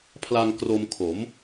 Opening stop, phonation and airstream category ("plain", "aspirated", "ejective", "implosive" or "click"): aspirated